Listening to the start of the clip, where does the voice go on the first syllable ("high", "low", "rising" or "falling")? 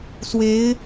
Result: rising